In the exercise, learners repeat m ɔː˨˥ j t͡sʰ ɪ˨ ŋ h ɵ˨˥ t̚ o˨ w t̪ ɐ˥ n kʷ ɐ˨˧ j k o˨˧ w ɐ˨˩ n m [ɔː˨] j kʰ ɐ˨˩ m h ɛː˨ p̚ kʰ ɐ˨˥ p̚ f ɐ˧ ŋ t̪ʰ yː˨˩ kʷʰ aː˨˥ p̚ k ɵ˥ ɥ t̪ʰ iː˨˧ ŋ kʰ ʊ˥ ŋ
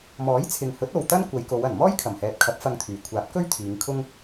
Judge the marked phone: incorrect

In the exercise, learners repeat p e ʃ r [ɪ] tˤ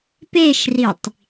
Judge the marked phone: incorrect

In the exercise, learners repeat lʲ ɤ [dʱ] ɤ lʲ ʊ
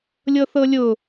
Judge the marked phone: incorrect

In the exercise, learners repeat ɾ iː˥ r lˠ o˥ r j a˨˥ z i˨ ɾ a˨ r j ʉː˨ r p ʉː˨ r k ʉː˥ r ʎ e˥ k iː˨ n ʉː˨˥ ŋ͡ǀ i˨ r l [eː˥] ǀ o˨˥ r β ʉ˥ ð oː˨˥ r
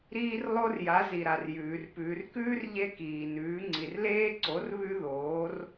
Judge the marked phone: correct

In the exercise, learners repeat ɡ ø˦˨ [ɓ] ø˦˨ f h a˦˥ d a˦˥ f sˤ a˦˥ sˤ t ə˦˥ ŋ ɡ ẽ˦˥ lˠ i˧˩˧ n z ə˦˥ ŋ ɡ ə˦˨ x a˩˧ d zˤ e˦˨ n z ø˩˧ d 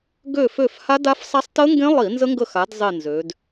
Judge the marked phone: incorrect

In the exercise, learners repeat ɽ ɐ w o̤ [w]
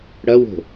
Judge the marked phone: incorrect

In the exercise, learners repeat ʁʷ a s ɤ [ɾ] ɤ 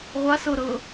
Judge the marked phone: correct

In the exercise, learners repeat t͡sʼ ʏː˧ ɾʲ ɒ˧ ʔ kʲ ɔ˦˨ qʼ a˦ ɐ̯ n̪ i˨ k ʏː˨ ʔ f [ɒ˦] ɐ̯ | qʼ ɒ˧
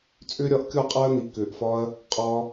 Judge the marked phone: correct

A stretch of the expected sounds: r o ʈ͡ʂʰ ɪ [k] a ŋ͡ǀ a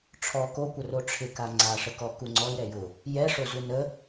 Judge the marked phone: correct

